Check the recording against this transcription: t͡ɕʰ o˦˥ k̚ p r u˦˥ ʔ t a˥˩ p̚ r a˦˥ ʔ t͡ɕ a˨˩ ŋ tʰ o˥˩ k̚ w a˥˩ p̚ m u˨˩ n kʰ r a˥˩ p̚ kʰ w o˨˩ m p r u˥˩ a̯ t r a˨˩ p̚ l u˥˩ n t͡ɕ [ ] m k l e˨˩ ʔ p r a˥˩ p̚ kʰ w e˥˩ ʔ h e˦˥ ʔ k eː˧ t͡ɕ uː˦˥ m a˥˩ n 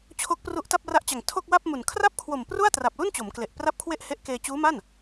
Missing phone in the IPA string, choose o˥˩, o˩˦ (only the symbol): o˩˦